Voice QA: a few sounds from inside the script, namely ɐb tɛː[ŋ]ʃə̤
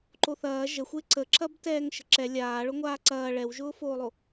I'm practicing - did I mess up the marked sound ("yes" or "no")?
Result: no